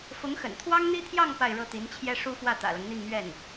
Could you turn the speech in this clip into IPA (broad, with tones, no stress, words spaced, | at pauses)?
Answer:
fʊ˧˥ŋxə̰˨˩n t̪ʰwɑ˥ŋn̪i˥t̪ʰjɑ˥˧ŋ pa˥˧ɪ̯ɻɤ˥˩t̪i˧˥nt͡ɕʰjɛ˥ ʂu˥fwä˥˩ t̪ä̰˨˩lɤ˦ŋn̪i˥˧ŋmɥɛ˥˩n